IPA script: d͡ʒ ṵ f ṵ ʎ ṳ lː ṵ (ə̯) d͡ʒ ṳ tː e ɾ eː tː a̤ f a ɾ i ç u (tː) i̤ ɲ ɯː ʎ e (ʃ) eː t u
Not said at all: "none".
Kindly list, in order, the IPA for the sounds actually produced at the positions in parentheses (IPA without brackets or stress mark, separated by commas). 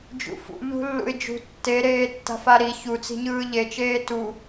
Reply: ɪ̯, t͡s, t͡ʃ